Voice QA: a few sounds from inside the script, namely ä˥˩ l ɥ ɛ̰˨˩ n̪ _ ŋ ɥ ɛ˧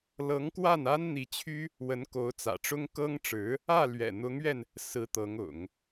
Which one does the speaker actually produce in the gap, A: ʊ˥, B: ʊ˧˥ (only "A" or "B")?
B